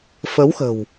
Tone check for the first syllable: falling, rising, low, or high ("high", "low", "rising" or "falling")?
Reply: rising